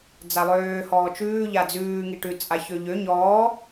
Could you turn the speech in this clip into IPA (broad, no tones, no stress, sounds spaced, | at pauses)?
d͡z a lˠ øː h ɔː t͡ʃ ʉː ʎ a d͡z ʉː ŋ i ʈ ʉ t͡sʼ a ç ø ʎ ø ɲ ɔː